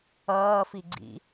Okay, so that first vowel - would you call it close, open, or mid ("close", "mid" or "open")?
mid